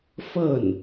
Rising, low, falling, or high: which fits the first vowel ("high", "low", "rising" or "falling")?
falling